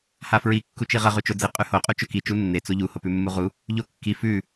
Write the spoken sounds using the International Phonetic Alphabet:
h a f ɹ i kː u t͡ʃ i ʁ ɐ ʁ ʉ t͡ʃ o d͡z i qʼ ʉ h o qʼ u t͡ʃ ɵ k i t͡ʃ u nː e t͡s o ʎ u h o p ʉ mː u ʁ u | ʎ o kː i f ʉ

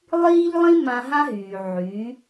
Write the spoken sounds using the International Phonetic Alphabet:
lˠ iː˦ ʎ lˠ ĩ˦ m ã˦ ɦ ã˦ ɦ yː˨ ʕ yː˨˦

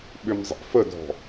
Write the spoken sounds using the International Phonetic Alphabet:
ɓ ʏ m zˤ ɛ̰ f ə dʱ ɔ̤

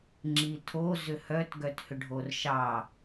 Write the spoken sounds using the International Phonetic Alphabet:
ŋ͡ǁ i tʰ o z ʏ h œ t ɡ œ t h ʏ ɖʱ o r ʃ ɑ

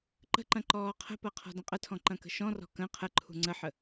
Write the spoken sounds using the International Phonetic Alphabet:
ǃ ə̤ ǃ ɐ̃ ǃ ɔː qʰ ə̤ p ɐ qʰ ɔ̤ d ə̃ qʼ ə tʰ ɔ̃ ǃ ɐ̃ k ə̤ ʃ ɔ̃ r ɔ̤ k ə̃ qʰ ə ǃʰ ṳ ŋ͡ǀ ə ħ ə

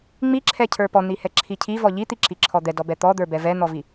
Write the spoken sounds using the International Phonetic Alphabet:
ŋ͡m i ǁʰ ɛ cʰ ə˞ p ɔ n̪ i h ɛ ǁʰ i cʰ i v ɔ ʎ i t̪ i ǁ i ǁʰ ɔ d̪ ɛ d ɔ b ɛ t̪ ɔ d̪ ə˞ b ɛ v ɛ n̪ ɔ v i

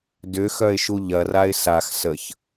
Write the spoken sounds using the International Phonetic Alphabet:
d ʏ x œ ɪ̯ ʃ u ʎ ɐ r a ɪ̯ s a x s ə ç

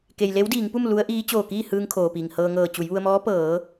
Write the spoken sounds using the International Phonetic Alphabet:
k e˩ j l e˧˥ w d iː˩˧ ŋ p u˥˨ m l u˧˥ ə̯ ʔ iː˧˥ t͡ɕ oː˧˩ k iː˥˨ h ɯː˧ ŋ kʰ oː˩ p iː˩ ŋ h ɤː˧ ŋ ɤː˧˩ t͡ɕ u˩˧ j ʋ u˧ ə̯ m ɔː˧˥ p ɤː˩˧

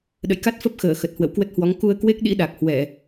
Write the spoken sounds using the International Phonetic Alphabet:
ɗ ə̰˧˨ j k a˦˥ t̚ f ə˦˥ p̚ x əː˧˩ x ə˨˩ t̚ h w ə̰˧˨ w k w ə˦˥ t̚ h w ɔ˨˦ ŋ k u˧ ə̯ k w e˦˥ k̚ ɗ ḭ˧˥ ɗ a˨˩ k̚ h w ɛ˧˩˨

